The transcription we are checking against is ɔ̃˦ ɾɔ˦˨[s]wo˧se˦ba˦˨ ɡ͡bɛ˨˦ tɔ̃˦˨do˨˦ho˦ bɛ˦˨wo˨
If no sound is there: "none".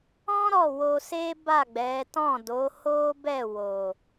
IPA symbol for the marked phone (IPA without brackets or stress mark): none